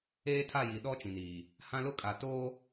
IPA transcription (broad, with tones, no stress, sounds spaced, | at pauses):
eː˦ tʰ a˦˨ j i˨ ɗ ɔ˦ t͡ʃ ĩ˨ n iː˨ | h ã˦ l ʊ˦ kʼ a˨ t oː˦